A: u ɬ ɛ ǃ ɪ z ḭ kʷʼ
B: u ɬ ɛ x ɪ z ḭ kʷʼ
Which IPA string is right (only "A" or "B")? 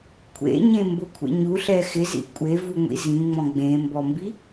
B